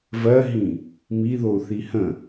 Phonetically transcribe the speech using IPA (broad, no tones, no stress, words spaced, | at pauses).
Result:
vɜɦĩ | miðou̯ θihə̃